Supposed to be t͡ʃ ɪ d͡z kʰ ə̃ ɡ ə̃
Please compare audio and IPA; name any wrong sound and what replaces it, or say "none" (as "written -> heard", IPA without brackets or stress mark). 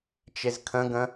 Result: d͡z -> z